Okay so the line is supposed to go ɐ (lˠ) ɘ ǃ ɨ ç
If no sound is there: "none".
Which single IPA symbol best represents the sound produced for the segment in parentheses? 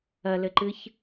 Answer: l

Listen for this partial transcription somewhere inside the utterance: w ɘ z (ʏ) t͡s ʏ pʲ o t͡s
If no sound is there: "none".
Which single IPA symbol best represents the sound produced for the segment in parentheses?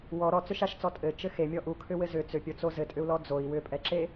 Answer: ʏ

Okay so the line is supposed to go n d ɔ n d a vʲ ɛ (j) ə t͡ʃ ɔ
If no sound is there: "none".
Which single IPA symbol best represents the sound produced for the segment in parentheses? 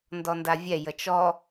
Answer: j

